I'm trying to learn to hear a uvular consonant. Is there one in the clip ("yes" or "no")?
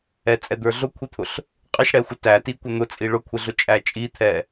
yes